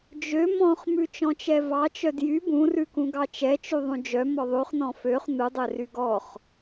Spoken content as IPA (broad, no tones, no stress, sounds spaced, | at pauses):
d͡ʒ ø m ɔ̃ χ m ʉ t͡ʃ ɔ̃ t͡ʃ ɛ v ɑ t͡ʃ œ d j y b ũ r ʉ k ũ ɡ ɑ t͡ʃ ɛ t͡ʃ y ðˤ ũ d͡ʒ œ m ɔ ðˤ ʉ χ n ɔ̃ f ø χ n u dˤ ɛ r y ɡ ɔ χ